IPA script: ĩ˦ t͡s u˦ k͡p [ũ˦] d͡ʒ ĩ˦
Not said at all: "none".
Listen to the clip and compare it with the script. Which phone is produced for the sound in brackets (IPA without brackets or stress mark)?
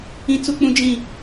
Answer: ũ˦